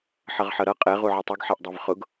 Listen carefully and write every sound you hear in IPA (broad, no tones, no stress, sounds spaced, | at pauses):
ħ ʌ ʁ ħ ʌ ɾ ʌ qʼ ɛ ʁ u ʕ ʌ tˤ u ɡ ħ ɛ ʔ dˤ ɛ v χ ʊ ɡ